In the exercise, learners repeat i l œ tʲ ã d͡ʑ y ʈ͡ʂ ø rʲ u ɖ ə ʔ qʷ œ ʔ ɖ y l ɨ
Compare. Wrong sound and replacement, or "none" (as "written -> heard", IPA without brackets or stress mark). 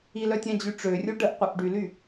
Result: ɨ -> y